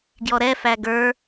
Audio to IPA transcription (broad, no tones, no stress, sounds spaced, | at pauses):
ɡ j ɔ ɾ ɛ f æ ɡ ə˞